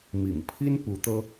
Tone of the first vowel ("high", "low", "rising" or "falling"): low